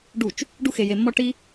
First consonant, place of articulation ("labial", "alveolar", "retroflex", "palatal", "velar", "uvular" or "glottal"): retroflex